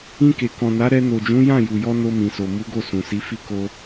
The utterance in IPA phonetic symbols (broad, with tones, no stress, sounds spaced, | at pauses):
ĩ˧ k e˨ k ɔ̃˨ n a˨˦ ɾ ɛ˧ n o˨ d͡ʒ ũ˨˦ j ã˦˨ j u˨ j ɔ˧ n o˧ m ĩ˨ s o˨ m u˨˦ ɡ o˦˨ s ũ˨ s i˨˦ f i˦ k o˦